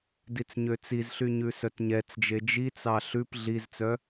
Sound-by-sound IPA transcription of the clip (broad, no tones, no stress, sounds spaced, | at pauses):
d i t͡s ɲ ø t͡s i z ɬ y ɲ ʉ s œ t ɲ ɛ t͡s d͡ʒ e d͡ʒ i t͡s ɑ ɬ ʉ p ɮ i z t͡s œ